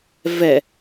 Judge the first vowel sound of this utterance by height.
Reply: mid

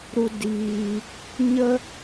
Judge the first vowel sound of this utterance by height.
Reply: high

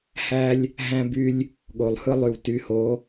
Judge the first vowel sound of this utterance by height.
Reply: low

